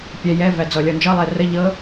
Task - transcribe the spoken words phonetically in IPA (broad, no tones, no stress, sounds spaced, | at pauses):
pʲ ɛ j ɛ v æ d͡z ɔ lʲ ɔ n d͡ʒ ɤ lˠ ɛ r ə ʎ ɤ